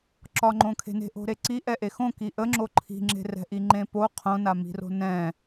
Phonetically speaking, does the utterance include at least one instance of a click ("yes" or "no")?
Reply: yes